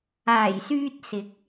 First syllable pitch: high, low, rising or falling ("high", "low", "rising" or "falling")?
low